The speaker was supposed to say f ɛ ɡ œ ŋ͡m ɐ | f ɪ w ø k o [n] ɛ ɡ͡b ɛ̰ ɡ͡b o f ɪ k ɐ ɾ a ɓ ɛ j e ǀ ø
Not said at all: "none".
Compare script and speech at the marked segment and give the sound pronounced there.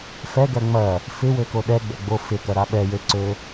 ɗ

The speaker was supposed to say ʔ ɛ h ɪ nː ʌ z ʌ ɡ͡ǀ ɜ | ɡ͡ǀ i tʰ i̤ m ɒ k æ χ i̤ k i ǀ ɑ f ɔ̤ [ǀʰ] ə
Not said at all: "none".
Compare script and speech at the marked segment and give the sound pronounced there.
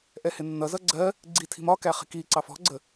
ɡ͡ǀ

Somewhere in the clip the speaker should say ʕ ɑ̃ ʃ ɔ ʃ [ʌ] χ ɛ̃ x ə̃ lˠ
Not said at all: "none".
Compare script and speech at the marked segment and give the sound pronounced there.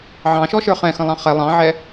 ə˞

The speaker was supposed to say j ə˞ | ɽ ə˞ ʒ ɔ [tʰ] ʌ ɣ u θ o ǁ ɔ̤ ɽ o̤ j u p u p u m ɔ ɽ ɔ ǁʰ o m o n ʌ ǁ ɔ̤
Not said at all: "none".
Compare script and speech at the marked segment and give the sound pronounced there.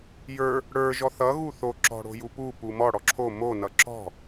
θ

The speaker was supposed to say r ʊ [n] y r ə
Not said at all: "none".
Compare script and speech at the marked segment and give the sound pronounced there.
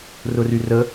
r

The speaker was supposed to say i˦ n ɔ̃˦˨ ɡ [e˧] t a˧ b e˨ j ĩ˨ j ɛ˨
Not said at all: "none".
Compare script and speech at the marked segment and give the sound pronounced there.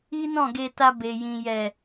e˧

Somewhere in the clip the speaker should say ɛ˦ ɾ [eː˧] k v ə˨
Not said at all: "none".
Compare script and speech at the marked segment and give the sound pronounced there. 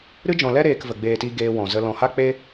eː˧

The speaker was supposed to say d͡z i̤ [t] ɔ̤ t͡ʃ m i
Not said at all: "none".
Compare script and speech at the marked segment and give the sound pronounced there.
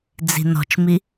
n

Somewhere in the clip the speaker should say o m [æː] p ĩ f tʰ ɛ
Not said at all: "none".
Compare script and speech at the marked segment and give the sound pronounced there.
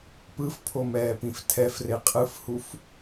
ɛː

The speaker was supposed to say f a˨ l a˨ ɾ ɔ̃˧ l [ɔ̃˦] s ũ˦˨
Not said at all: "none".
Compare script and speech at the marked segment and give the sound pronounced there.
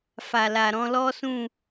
ɔ˦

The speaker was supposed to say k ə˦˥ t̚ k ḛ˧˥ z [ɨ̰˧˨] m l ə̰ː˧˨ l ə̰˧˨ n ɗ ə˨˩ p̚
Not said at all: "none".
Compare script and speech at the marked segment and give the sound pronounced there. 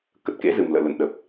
ɨ˨˩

